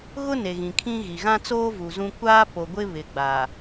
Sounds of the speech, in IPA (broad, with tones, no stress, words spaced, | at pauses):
ɣʊ˦ ne˨ɣĩ˨kʰĩ˦ɣi˨ ɣã˦t͡soː˦ vu˨zũ˦ kʷaː˦po˨ɡʷɪ˦ βɪ˨ɡ͡ba˨